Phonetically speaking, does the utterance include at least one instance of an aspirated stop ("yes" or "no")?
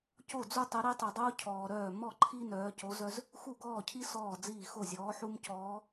yes